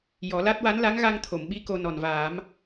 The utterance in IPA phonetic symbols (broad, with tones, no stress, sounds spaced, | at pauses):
j ɔ˨˩˦ l a˦˥ t̚ w a˧˥ n l a˧˥ ŋ ɣ a˧ ŋ t̪ʰ o˨˩˨ m ɓ i˧˥ k o˧ n ɔ˨˩ n v aː˨˩˦ m